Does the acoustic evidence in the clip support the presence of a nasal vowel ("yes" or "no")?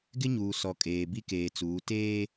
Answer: no